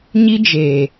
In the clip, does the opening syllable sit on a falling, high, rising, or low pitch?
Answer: high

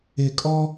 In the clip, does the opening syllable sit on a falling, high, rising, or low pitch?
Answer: low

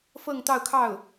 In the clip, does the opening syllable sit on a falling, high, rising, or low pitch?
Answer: falling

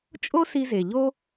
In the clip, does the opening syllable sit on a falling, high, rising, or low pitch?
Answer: high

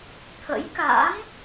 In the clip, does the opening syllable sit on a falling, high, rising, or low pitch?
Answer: rising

